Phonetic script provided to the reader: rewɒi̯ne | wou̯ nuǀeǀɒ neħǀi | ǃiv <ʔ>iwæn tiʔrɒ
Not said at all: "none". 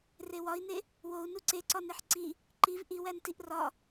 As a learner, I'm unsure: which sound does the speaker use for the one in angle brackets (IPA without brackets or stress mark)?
ʔ